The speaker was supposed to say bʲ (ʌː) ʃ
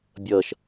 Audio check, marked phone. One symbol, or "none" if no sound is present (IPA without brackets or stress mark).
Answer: ʌː